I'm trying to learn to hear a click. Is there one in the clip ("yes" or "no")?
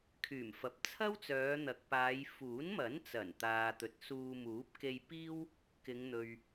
no